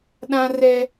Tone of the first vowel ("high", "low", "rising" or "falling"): high